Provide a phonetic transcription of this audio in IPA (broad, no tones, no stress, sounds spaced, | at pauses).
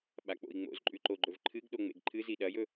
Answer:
ɓ a k͡p o̰ i̯ ŋ͡m o̰ z ǃʼ ʉ ǃ o ɡ͡ǃ ɵ v ǃʰ ɨ ɡ ɗ o ŋ͡m ḛ ɡ ǃʰ ɨ z i ɗ ɐ j ɵ